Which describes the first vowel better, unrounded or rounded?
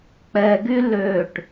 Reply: unrounded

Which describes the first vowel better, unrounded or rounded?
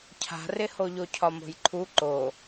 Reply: unrounded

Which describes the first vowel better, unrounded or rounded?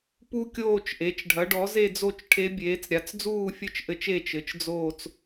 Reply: rounded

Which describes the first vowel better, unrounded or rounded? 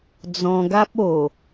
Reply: rounded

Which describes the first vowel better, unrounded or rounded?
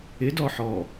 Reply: unrounded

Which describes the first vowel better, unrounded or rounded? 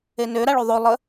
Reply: unrounded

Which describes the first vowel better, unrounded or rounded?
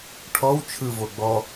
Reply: rounded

